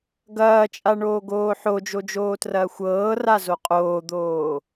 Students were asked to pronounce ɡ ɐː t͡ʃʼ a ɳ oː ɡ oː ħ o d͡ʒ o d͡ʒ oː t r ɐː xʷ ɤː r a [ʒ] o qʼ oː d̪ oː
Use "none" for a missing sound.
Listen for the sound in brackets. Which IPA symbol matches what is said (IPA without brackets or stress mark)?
z